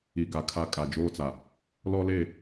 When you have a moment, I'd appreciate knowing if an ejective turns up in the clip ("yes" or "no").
yes